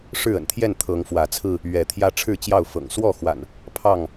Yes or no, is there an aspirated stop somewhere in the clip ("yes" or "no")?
yes